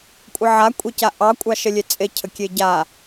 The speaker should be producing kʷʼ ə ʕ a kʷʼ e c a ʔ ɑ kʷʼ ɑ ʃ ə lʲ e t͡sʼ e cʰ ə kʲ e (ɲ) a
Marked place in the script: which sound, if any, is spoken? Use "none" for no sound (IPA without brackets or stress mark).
ɟ